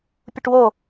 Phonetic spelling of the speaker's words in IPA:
pʲ u ʈ w o

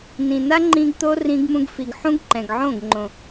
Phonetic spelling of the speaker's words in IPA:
n ĩ˨ n a˦ ŋ͡ǃ ĩ˧ ɡ t̪ o˦ r ĩ˧ ɡ m ũ˧ ɡ f i˨ ɡ ħ ũ˦ ɡ ǃ ɛ̃˨ ɡ ʕ õ˦˨ ɡ ŋ͡ǃ õ˨

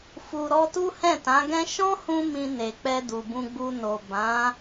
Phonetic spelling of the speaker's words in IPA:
f u˨ ɾ ɔ˧ t u˦ h ɛ̃˦˨ t ã˨˦ ɡ ɛ̃˦ ʃ ɔ̃˦ h ũ˧ m ĩ˧ n e˨ k͡p ɛ˧ d u˨ b ũ˧ ɡ͡b u˧ n o˨ b ã˨˦

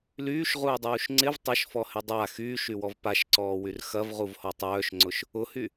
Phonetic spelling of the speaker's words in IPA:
l yː ʃ ʁ uː dˤ uː ʃ ŋ͡ǀ ɪ v tˤ ɐ ʃ f ɔ h ɪ dˤ a x yː ʃ y w ɔ v p a ʃ ǀ ɔː w y r x ɐ v ʁ u v h ɔ tˤ œː ʃ ŋ͡ǀ ʊ ʃ | ʊ h y

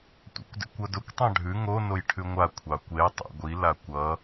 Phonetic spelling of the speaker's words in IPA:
tʷ ɑ̰ kʷ d ḛ kʷ ʌ d ʊ kʷ tˤ ɑ̃ ɖʱ ʉ ŋ o n o j ʈʰ ʉ ŋʷ a kʷʰ ɑ kʷ e j tˤ ḛ ɡʷ i l a kʷ ʌ

